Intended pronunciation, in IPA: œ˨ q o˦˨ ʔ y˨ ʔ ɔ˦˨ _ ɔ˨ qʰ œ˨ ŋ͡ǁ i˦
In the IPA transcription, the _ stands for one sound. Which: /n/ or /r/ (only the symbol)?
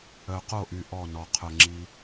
n